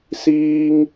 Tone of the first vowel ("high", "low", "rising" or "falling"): high